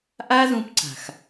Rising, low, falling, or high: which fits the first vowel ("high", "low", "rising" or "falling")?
high